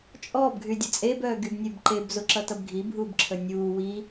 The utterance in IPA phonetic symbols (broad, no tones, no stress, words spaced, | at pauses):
t͡ʃʼɔb ɡʱydʲət͡sʼeb œːɡybnʲebǃeb zoǁʌtʌbɡʱi bʱuːbǁʰənʲuː wi